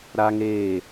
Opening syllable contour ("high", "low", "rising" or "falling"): high